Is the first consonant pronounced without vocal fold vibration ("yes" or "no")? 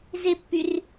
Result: no